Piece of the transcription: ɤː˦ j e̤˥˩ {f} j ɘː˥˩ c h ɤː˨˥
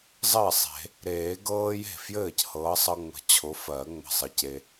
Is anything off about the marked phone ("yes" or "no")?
no